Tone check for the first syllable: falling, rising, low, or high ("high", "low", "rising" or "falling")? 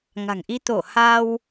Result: low